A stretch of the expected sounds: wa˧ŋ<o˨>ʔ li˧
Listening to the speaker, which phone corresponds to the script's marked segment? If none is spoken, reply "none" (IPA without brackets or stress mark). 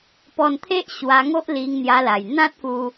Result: o˦